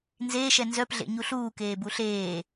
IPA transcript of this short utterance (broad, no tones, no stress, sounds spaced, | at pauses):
n z eː ʃ ɛ n z œ p ɮ ḛ ɲ u ɬ uː k eː b u ɬ eː